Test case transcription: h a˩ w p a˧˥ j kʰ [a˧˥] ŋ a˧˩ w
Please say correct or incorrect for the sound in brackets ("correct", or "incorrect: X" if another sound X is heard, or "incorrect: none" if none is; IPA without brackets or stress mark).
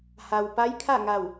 incorrect: a˥˨